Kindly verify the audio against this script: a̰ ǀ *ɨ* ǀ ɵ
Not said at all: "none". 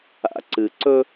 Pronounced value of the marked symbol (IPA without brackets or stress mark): ɨ